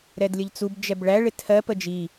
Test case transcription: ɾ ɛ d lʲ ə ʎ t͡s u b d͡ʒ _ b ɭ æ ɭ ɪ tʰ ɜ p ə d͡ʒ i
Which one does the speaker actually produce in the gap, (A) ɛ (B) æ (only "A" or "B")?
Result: A